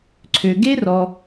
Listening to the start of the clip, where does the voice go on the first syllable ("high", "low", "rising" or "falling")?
low